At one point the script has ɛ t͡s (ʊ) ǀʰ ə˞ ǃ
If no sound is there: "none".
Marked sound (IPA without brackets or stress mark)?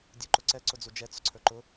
ʊ